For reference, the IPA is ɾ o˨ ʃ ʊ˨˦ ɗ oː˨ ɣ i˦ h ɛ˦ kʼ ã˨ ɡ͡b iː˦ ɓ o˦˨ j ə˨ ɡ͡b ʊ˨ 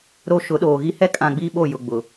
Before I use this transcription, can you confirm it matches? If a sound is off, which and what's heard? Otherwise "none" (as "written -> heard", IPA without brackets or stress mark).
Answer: ə˨ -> ʊ˨